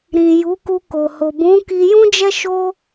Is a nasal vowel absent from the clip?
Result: no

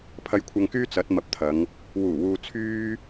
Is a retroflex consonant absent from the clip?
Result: yes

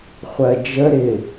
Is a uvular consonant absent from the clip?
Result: no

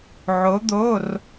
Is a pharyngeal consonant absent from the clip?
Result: no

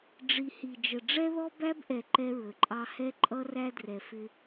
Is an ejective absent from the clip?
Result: no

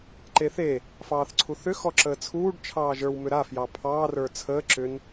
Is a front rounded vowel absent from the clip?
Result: no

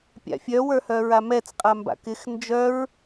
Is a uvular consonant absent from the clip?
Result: no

